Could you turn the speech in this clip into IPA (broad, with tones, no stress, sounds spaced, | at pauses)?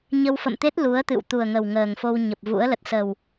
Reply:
ɲ ə˧ w f ə̰˧˨ m t̪ e˦˥ t̚ l u˨˦ ə̯ t̪ ɨ̰˧˨ w t̪ u˨˩ ə̯ ŋ ə˨˩ w ŋ əː˨˩ ŋ f o˧ w ɲ ə˨˩ p̚ v ṵ˧˥ ə̯ l ə˨˩ t̚ s ə˨˩ w